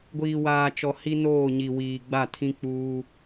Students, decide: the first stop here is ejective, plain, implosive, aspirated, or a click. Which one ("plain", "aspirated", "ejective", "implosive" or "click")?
plain